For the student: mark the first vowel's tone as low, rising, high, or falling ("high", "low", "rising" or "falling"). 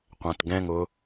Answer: low